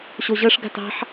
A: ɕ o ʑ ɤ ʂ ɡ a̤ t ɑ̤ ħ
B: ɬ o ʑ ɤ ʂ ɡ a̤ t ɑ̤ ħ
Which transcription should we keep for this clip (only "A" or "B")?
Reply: A